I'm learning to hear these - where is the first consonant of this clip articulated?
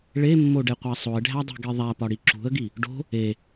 retroflex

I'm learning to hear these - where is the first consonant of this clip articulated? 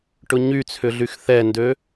retroflex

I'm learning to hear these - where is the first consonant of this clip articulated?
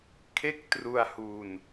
velum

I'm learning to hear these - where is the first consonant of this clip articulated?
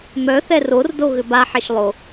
lips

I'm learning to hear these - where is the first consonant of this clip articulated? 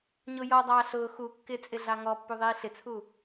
palate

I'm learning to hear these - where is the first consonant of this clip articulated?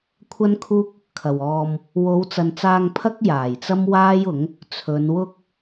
velum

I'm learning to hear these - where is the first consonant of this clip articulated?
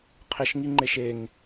uvula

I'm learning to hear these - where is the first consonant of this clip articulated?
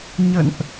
palate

